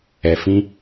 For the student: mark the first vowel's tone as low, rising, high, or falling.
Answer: low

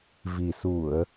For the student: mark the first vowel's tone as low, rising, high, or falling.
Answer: low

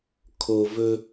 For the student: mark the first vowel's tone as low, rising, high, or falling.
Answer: low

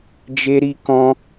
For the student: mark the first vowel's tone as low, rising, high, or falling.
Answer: high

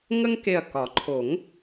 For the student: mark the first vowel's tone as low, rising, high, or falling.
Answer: high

